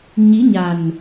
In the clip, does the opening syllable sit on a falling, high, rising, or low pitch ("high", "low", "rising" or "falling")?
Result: rising